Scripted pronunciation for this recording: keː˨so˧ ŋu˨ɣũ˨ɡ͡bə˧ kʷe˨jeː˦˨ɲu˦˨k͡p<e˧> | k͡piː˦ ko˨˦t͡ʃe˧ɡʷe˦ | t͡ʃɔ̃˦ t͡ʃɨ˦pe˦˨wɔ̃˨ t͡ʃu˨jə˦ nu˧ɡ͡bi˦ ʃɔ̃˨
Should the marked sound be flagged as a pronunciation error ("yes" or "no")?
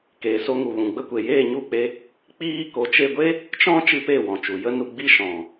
no